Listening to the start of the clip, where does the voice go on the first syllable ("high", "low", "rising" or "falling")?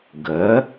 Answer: rising